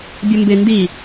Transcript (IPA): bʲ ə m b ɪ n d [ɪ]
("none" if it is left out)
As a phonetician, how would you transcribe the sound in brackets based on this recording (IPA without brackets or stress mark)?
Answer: i